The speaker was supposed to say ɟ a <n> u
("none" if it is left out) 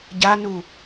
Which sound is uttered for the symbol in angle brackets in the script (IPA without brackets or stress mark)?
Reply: n